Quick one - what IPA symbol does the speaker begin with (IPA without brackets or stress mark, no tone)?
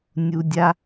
nʲ